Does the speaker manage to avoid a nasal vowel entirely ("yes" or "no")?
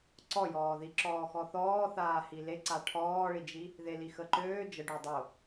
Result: yes